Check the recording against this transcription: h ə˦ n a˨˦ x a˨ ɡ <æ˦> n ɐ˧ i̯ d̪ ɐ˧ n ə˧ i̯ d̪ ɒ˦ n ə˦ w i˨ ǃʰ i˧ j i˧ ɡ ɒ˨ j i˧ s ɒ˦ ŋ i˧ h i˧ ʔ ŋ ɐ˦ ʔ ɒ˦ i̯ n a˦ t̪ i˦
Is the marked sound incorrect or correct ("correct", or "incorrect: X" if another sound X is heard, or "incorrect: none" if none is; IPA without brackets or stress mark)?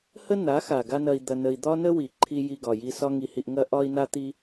incorrect: a˦